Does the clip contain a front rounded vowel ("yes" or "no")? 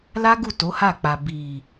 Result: no